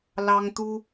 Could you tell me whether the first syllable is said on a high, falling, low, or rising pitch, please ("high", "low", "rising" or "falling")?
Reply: high